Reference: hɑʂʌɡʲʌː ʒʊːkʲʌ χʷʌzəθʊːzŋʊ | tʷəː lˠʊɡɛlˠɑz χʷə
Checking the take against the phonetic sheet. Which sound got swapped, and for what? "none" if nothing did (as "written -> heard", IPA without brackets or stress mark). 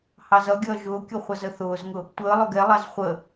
ʂ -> z